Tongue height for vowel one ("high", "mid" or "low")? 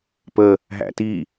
mid